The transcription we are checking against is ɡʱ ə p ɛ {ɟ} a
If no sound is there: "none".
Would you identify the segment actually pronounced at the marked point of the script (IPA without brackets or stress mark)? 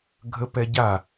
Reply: ɟ